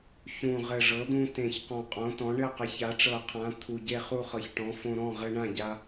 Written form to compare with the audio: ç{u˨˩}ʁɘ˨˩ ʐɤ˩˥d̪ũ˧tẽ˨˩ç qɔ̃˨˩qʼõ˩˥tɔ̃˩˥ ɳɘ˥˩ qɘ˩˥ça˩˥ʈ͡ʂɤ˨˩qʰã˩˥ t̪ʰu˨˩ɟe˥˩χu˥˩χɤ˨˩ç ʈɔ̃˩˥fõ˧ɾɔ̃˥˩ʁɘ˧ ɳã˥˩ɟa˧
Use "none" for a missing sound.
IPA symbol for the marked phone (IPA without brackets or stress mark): ũ˨˩